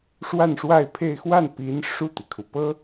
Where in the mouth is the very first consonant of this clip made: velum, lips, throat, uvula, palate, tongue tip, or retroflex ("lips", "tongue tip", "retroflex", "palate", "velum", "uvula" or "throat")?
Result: retroflex